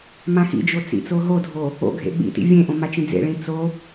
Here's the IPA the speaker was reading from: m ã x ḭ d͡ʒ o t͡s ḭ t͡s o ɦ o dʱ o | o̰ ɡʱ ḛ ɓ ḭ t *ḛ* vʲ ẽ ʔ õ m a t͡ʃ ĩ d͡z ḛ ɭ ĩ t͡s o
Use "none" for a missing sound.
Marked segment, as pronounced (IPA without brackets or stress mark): ḭ